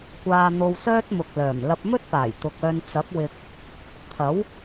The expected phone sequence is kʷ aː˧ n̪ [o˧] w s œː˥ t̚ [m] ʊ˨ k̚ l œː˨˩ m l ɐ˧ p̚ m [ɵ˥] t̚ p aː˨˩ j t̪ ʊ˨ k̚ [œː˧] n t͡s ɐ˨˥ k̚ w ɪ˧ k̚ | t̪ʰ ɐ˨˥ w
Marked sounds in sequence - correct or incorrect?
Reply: correct, correct, correct, correct

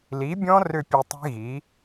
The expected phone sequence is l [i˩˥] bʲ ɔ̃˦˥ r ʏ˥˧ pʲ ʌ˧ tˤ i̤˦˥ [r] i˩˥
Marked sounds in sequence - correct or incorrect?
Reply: correct, incorrect

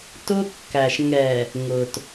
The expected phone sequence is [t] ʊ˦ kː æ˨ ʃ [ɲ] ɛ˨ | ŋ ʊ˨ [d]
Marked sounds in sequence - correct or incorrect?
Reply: correct, incorrect, incorrect

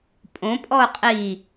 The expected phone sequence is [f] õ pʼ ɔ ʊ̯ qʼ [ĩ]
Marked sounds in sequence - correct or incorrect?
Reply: incorrect, incorrect

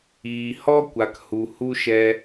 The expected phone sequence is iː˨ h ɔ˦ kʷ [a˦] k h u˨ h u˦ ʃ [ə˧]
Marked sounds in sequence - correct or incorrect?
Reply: incorrect, incorrect

